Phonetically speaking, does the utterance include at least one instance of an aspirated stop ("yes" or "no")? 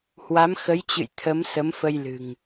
yes